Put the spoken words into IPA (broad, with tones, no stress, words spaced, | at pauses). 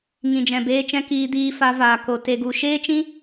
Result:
ŋĩ˨d͡ʒɛ̃˨beː˧t͡ʃɛ̃˧ kiː˧diː˧fa˧ vaː˨ko˨ te˨ɡu˨ ʃeː˦t͡ʃĩ˦